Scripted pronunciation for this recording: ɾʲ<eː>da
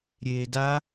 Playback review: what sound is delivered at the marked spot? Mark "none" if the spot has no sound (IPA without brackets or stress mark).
eː